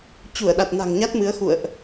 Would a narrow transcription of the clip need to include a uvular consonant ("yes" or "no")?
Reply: no